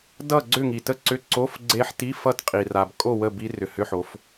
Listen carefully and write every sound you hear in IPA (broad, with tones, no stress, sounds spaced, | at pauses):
d ʌ˥˨ ɡ͡ǀ ʏ˥˨ ŋ i˩ t ə˦˥ ǀ ʏ˧˥˧ ǀ o˧˥˧ f ɡ͡ǀ e˦˥ ħ t i˧˥˧ f ʌ˥˨ t qʼ i˩ r a˩ b kʼ o˥˨ w ə˥˨ b i˦˥ r ʏ˩ h ʏ˧˥˧ ħ o˩˧ f